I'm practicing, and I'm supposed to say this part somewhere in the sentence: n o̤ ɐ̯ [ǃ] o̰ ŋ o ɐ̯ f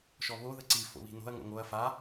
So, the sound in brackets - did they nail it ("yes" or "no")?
no